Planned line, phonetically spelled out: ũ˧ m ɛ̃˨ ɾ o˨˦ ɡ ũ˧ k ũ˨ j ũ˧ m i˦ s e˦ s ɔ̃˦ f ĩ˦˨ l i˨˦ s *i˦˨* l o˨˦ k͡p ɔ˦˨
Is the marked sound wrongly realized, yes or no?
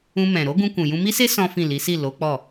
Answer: no